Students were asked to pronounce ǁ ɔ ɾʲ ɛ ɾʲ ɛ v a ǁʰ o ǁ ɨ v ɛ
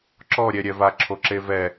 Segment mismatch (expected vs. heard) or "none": ɨ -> e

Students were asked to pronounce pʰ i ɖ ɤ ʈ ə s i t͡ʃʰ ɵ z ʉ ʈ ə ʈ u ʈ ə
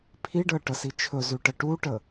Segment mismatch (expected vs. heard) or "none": none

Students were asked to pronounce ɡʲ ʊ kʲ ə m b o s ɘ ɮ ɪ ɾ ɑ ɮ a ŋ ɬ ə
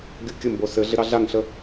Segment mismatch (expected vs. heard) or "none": none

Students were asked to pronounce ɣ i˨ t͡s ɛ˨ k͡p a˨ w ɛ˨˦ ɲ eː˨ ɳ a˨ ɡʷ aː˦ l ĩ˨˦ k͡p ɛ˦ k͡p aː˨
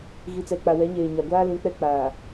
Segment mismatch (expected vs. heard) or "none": ɳ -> ɲ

